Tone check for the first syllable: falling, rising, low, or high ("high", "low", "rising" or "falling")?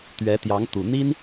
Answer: rising